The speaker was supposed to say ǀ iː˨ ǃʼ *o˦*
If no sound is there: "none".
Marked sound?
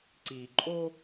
o˦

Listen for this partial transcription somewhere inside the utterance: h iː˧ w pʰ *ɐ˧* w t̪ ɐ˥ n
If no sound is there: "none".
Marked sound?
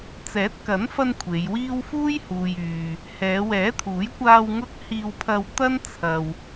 ɐ˧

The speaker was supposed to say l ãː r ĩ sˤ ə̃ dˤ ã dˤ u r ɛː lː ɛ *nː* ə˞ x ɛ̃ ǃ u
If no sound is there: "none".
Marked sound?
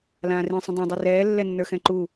nː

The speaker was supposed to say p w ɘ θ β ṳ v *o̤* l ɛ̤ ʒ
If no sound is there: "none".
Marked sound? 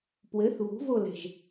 o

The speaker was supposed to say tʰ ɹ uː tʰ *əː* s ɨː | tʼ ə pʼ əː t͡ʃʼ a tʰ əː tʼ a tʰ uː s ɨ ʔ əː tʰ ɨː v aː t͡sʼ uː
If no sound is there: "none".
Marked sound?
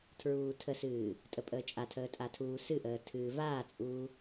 ə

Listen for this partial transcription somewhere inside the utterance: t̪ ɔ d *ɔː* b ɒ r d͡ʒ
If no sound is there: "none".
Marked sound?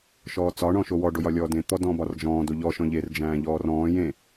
ɔ̃ː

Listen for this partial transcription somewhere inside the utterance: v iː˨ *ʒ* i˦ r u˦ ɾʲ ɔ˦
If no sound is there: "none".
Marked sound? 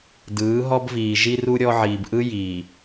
ʒ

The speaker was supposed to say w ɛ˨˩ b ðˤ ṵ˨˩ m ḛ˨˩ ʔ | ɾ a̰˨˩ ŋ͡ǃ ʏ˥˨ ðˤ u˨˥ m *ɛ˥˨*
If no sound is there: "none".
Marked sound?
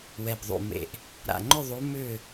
ʏ˥˨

